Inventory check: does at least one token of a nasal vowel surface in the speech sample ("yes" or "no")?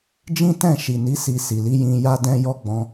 yes